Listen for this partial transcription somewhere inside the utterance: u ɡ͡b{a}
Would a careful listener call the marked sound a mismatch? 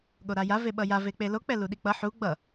yes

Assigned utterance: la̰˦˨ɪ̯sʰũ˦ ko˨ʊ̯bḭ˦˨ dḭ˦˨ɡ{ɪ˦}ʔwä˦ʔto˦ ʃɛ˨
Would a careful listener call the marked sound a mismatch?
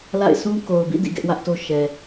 yes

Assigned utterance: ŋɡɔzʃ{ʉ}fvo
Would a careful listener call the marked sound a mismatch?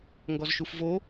yes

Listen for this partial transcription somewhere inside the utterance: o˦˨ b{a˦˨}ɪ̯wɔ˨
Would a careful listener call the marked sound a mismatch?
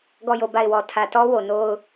no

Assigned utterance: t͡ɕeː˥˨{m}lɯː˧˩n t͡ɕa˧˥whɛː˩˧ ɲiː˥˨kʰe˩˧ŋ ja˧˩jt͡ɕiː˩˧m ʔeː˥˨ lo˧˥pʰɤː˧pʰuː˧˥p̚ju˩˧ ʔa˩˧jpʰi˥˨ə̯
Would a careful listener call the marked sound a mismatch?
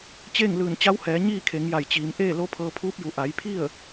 yes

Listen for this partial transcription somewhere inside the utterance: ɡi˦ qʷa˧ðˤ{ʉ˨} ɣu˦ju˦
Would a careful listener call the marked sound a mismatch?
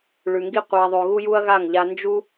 no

